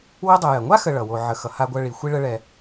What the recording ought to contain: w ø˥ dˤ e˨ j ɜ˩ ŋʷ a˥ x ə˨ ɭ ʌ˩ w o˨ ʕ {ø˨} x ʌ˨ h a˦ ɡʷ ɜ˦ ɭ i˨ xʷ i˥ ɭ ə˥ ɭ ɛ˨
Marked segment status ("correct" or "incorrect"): incorrect